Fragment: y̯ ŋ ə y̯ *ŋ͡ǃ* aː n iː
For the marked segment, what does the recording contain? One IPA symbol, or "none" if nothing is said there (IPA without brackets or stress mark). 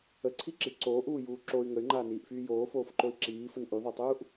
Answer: ŋ͡ǃ